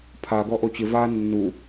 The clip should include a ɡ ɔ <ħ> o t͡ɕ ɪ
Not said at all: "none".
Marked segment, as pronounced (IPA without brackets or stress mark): ʔ